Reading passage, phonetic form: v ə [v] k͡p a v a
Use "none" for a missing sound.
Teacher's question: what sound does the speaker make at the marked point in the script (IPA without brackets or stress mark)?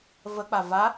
none